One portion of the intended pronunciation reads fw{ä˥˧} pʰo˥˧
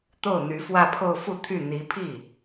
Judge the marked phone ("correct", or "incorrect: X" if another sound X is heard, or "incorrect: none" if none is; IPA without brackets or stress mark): correct